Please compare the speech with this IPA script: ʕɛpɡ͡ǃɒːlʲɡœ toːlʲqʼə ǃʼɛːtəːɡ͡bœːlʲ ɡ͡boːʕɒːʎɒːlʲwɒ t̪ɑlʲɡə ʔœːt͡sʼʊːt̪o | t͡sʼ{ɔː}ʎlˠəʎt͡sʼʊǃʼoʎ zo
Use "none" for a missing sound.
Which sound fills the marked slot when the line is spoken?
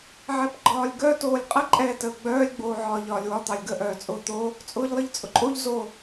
ʊː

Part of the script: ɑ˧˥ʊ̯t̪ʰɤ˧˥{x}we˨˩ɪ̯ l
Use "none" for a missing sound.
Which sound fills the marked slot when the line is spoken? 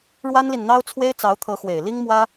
x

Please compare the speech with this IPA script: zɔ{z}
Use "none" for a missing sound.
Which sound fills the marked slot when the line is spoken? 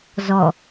none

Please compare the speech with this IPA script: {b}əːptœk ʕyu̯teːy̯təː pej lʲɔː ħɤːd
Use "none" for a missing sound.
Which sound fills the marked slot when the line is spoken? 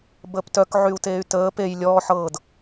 b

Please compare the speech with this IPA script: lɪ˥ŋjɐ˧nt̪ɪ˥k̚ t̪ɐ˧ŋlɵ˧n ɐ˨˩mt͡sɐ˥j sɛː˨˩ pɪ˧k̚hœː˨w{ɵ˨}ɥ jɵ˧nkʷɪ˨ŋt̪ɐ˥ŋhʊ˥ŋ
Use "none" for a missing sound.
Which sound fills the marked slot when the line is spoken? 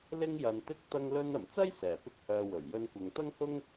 ɵ˨˩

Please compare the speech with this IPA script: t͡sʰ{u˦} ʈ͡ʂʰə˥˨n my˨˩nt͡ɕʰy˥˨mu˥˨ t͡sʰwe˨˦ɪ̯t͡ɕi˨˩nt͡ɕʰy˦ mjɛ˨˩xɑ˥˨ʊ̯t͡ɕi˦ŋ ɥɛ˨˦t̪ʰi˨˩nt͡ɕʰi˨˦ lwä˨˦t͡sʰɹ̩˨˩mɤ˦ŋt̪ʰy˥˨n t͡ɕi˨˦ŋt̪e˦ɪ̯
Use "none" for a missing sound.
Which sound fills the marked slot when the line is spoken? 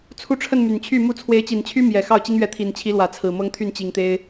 u˦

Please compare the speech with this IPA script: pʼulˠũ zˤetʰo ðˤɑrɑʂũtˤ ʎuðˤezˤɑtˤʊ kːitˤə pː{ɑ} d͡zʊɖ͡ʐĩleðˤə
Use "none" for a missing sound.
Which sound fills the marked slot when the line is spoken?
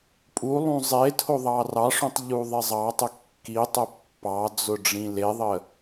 ɑ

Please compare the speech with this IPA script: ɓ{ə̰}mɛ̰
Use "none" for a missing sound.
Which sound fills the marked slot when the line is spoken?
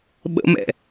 ə̰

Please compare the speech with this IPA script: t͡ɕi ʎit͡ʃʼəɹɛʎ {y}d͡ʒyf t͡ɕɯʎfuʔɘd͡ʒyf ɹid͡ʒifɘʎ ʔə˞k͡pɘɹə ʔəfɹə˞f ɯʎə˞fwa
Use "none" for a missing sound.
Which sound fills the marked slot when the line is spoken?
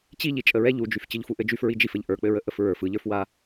u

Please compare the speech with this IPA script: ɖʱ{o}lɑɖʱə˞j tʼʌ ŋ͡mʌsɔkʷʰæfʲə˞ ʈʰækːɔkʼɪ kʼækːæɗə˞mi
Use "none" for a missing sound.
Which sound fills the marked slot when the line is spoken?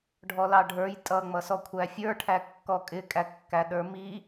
ɔ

